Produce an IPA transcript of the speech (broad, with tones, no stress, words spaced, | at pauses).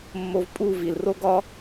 mːo˧vpʼu˦˨vi˨lro˦ ɡɒ˦